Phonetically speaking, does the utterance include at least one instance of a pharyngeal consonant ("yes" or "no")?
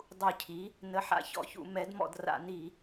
yes